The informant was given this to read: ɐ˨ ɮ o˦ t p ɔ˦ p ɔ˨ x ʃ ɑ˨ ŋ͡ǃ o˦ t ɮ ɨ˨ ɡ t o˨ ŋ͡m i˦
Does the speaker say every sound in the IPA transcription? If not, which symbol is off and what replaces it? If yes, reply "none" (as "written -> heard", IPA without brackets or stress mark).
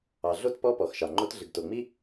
ɐ˨ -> ɑ˨